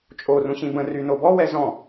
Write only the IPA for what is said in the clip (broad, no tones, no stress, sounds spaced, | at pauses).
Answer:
t͡ʃʼ o r ũ ɕ ĩ b ə̃ r y n o b ɔ w ɛ z ɔ̃